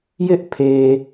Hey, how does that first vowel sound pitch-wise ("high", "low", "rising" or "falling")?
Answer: high